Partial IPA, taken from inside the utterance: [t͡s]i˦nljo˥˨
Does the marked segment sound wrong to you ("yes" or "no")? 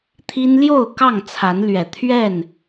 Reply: yes